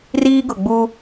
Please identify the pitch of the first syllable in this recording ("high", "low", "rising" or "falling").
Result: high